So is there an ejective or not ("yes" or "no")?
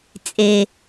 yes